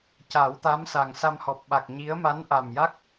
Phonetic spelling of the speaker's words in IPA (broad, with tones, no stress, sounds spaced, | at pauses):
c a˨˩˦ w t̪ a˧˥ m s a˨˩ ŋ s a˧ m h ɔ˨˩ p̚ ɓ a˨˩ k̚ ɲ i˧˥ ə̯ m a˧˥ n ʔ a˨˩ m j a˦˥ k̚